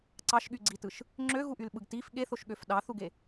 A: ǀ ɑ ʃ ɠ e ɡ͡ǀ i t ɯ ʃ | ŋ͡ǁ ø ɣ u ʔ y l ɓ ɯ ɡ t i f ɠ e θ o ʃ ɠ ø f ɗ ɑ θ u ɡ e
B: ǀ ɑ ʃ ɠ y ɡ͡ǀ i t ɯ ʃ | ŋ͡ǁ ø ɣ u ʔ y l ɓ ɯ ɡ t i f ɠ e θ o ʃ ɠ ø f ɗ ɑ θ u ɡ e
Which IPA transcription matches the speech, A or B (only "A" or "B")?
B